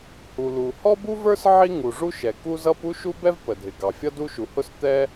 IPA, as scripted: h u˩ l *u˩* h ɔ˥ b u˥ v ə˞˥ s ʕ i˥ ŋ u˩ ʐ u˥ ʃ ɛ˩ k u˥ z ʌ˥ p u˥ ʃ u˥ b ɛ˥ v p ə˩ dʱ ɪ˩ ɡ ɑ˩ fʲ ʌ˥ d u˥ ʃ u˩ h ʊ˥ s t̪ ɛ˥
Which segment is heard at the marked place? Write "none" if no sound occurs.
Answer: u˩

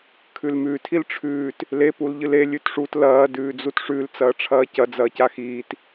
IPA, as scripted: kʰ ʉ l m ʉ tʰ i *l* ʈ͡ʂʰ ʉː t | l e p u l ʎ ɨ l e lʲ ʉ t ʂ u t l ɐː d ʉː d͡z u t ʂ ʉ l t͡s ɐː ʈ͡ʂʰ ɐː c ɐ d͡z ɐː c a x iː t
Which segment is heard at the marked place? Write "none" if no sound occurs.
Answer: l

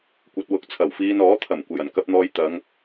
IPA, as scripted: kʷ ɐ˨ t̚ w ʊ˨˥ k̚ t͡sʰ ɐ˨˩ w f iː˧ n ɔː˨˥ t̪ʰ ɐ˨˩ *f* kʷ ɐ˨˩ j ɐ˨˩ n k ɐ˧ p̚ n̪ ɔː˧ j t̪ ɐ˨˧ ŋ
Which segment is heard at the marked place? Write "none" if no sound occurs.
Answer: m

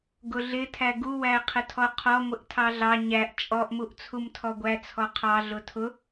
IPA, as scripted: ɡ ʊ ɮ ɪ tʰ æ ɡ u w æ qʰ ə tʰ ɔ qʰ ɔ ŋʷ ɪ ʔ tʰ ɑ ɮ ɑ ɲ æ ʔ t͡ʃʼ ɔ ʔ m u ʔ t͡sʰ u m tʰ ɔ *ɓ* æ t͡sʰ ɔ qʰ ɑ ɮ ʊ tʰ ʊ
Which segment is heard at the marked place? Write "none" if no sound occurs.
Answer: ɡʷ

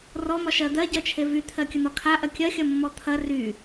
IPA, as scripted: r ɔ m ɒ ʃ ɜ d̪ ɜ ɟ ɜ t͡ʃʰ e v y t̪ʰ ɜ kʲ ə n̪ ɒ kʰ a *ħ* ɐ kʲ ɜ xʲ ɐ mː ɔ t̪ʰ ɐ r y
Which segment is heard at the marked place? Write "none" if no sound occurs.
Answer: ʔ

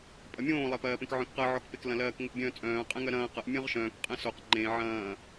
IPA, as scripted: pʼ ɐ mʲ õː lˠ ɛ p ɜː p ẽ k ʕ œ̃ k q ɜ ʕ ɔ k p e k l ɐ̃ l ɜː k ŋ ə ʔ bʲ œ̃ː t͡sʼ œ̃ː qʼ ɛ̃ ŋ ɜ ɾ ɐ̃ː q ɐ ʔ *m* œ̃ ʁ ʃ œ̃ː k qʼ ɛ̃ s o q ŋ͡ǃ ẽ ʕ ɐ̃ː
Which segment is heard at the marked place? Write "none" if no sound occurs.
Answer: mʲ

